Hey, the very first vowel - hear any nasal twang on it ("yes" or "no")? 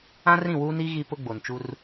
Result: yes